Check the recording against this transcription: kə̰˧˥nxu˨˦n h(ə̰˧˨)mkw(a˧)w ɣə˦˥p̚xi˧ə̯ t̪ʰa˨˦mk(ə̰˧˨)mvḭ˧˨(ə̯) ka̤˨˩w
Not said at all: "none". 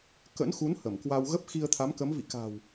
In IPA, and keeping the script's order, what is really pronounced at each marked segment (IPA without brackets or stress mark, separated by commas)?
ə˧˩, a˧, ə˨˦, none